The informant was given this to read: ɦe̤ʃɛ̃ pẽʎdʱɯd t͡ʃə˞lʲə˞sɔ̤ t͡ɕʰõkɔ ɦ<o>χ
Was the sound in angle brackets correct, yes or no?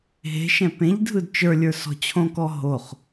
yes